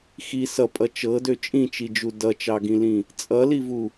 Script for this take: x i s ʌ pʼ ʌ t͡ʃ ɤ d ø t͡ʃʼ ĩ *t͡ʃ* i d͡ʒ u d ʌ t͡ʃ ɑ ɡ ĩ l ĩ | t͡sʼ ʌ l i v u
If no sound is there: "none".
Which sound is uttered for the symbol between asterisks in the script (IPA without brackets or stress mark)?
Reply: t͡ʃ